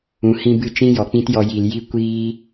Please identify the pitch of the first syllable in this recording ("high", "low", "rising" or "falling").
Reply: rising